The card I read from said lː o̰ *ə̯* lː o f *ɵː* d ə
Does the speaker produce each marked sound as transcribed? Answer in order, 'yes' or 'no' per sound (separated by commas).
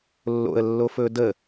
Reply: yes, yes